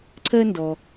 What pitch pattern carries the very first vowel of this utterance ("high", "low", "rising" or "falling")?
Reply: high